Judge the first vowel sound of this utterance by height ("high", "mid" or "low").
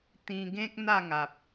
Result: high